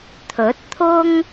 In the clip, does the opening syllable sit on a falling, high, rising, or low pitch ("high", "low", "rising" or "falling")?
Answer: rising